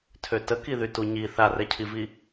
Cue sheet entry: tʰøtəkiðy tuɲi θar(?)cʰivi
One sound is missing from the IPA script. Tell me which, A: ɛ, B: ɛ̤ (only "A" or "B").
A